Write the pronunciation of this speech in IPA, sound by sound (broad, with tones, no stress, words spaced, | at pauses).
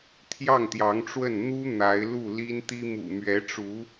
t̪ʰjɑ˥˩ŋt̪jɑ˧˥ŋʈ͡ʂwə˥˩n n̪u˥ n̪a˧˥ɪ̯lu˥˩ li˥nt̪i˥ mṵ˨˩mɥɛ˧˥ʈ͡ʂu˧˥